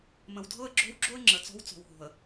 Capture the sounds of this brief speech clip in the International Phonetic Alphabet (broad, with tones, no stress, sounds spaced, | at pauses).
m ə̃˨ w dʱ ɤ˦ ə̯ ɡ͡ǁ o̤˦ w ɡ͡ǁ o˦ ə̯ ŋ͡ǁ ə˨ t͡s ɔ̤˦ w t͡s ɔ̤˨ w ɦ o̤˨ ə̯